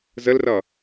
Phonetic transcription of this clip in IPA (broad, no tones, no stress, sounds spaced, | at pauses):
z ə l r ʌ